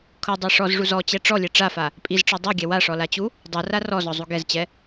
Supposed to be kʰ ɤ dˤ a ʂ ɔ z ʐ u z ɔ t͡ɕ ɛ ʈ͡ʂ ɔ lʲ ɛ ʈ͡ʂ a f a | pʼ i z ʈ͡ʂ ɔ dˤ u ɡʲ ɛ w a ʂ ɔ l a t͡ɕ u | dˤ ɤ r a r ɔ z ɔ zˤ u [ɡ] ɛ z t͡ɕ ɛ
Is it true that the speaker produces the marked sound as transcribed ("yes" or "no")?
yes